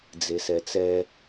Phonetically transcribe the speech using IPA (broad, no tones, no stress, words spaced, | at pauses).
d͡zesɛt͡sɛ